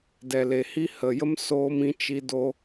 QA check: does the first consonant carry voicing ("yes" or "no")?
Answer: yes